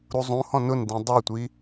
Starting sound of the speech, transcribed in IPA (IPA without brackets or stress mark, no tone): ɾ